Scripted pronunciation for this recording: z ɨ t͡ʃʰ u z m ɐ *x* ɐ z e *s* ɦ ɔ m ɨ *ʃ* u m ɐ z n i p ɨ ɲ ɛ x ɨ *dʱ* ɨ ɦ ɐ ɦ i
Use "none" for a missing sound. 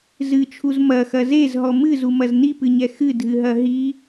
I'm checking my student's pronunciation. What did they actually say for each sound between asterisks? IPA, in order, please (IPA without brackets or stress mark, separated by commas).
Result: x, z, z, dʱ